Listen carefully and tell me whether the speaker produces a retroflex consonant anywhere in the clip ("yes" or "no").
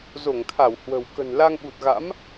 no